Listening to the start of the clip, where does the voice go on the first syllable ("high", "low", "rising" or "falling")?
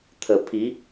low